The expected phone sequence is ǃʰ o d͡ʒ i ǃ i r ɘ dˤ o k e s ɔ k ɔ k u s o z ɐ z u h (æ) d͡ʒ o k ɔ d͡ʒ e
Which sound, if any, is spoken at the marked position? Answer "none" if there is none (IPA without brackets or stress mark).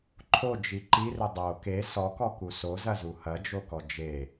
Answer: ɐ